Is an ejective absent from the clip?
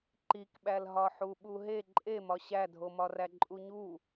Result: no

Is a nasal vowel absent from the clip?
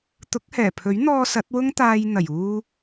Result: yes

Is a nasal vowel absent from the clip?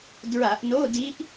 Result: yes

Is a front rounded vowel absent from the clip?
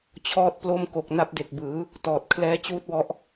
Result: yes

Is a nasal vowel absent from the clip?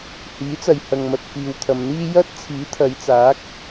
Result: yes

